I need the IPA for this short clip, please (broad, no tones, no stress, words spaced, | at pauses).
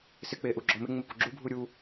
sɪk͡peʔu ɡ͡ǁɔmɪ ŋ͡mɪpuɡ͡ǁubʱu ɾʲu